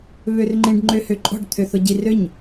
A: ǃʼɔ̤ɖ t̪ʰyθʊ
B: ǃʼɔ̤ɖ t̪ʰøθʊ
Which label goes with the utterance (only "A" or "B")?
B